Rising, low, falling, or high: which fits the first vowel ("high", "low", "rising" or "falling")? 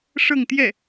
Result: falling